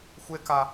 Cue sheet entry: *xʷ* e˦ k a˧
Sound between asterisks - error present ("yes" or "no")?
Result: no